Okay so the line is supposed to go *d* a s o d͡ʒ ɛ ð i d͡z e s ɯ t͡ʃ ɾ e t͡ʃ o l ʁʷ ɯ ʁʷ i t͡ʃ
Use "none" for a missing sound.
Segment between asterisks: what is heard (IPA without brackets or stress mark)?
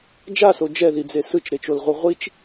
d͡ʒ